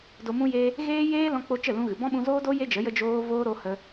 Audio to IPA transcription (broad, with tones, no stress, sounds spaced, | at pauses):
d o˧ m ũ˦ j e˦ | ɣ eː˦ j eː˦ l ɔ̃˧ k͡p o˧ t͡ʃ ə˦˨ l ũ˧ ɣ ɨ˨ b ɔ̃˦ ɓ ũ˧ z oː˦ d o˦ j e˦ d͡ʒ ə˨˦ j ə˧ d͡ʒ oː˧ v oː˦ ɾ o˧ h ə˧